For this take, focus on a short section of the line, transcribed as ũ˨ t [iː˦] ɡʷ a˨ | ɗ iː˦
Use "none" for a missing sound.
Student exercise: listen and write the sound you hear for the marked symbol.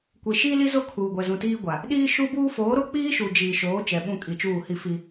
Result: iː˦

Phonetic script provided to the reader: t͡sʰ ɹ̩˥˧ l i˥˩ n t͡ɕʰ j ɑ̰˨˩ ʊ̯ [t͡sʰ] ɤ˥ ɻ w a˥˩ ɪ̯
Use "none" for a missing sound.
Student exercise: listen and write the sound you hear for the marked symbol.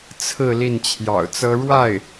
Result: t͡s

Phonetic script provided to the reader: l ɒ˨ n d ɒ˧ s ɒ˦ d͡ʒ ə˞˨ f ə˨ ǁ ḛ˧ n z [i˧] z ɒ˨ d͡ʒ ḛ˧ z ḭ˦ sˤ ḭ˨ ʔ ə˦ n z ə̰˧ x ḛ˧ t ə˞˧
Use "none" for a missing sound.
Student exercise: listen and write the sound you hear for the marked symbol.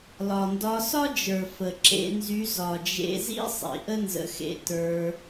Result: y˧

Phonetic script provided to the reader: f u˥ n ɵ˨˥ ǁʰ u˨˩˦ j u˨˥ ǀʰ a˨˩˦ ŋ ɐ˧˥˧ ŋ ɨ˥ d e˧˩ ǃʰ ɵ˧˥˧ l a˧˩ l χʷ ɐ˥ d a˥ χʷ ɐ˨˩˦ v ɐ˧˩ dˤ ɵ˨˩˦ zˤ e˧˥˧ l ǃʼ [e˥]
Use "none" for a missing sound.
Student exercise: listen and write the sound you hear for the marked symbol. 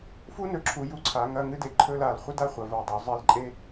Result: e˥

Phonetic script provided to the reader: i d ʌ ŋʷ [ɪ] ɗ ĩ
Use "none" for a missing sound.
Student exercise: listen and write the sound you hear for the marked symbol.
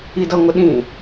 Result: ɪ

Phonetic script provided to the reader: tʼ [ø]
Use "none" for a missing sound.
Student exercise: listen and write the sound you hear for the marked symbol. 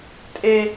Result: e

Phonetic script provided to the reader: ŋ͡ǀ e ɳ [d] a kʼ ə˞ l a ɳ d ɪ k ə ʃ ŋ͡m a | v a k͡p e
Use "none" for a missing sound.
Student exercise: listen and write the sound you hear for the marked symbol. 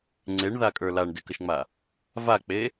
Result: ð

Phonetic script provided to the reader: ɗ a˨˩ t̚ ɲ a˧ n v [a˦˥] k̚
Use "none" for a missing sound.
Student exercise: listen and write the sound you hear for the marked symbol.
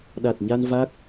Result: a˦˥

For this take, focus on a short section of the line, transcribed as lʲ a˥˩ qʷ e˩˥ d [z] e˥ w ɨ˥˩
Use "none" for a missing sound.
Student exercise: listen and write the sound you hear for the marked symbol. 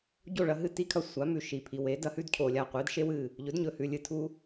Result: ʃ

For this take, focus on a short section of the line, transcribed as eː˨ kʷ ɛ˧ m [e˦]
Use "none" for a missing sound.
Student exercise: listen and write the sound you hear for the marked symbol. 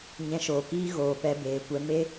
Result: e˦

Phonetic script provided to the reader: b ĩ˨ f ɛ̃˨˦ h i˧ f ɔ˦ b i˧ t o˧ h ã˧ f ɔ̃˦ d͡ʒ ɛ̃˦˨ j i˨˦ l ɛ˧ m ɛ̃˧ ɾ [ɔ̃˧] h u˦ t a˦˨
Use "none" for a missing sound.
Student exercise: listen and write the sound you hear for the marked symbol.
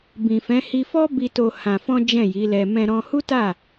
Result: ɔ̃˧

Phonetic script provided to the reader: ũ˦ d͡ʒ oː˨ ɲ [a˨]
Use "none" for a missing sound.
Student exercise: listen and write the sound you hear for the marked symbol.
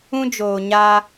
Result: a˦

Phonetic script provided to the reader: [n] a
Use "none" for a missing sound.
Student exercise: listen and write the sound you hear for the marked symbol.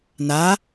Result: n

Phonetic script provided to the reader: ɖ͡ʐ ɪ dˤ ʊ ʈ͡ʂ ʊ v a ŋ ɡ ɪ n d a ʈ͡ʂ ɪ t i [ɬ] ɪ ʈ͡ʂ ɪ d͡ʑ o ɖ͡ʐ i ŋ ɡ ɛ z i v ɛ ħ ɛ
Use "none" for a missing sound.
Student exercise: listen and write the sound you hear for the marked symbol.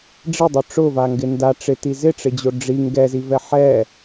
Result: z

